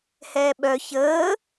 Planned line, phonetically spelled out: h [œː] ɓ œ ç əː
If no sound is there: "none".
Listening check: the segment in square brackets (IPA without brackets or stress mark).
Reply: ɛː